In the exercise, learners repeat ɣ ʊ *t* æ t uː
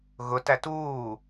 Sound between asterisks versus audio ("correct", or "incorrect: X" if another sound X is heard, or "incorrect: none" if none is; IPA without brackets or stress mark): correct